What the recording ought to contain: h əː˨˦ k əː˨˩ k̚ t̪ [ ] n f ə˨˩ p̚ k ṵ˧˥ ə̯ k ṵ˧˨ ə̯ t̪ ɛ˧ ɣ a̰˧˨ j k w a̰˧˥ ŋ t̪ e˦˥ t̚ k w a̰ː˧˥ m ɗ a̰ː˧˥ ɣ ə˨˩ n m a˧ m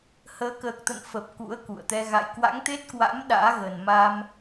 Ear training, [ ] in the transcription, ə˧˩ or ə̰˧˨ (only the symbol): ə̰˧˨